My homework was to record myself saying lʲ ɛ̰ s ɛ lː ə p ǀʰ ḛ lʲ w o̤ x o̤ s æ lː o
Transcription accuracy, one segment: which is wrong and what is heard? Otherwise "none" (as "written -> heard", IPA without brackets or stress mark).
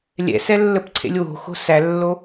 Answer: none